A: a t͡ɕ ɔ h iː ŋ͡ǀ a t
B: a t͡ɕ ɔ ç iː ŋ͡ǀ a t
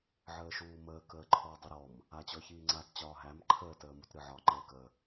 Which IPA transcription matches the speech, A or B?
B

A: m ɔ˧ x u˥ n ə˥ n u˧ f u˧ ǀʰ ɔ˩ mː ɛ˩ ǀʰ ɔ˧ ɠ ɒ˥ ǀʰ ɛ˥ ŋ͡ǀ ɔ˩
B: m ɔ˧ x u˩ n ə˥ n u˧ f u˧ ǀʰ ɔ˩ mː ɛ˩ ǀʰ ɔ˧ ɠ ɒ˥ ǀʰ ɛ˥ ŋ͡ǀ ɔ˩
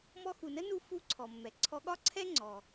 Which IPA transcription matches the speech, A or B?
B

